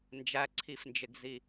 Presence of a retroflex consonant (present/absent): absent